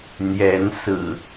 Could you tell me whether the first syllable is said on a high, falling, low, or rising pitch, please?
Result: rising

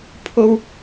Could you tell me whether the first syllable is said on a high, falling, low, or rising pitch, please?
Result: high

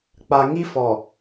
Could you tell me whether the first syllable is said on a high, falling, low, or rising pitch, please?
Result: low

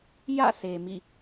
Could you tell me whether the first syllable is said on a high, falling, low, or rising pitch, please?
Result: falling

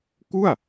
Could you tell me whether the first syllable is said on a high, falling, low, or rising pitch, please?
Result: falling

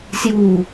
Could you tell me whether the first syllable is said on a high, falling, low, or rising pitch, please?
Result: falling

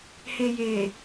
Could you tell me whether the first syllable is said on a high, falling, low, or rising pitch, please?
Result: low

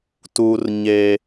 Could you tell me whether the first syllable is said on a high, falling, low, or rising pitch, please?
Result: high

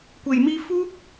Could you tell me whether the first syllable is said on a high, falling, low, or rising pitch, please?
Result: low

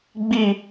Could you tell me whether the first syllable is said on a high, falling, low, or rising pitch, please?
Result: falling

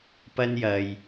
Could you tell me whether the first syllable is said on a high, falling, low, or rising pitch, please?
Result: high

